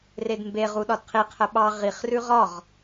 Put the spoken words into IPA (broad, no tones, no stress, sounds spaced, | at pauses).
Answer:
r e d m b e ʁ u ɗ ɒ d qʰ i qʰ ə ɓ ɑ ʁ i χ r ʉ ʁ ɒ ʁ